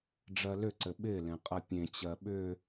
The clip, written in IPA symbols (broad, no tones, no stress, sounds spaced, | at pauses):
ɖ͡ʐ ɜ l ʏ ǀ ɘ ɓ ɪ l ẽ qʼ ɜ pʲ ẽ t͡ɕ ɜ ɓ ʏ